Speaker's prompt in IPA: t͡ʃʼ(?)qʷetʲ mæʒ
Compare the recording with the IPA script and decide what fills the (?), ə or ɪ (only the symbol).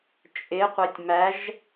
ɪ